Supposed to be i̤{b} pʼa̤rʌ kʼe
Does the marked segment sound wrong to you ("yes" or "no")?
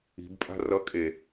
no